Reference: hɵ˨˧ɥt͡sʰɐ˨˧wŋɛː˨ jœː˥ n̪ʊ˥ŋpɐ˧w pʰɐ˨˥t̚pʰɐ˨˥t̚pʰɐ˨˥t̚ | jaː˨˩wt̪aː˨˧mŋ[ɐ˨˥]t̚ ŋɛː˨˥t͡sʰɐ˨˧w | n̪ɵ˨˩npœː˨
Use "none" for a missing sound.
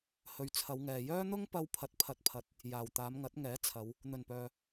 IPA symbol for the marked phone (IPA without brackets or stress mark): ɐ˨˥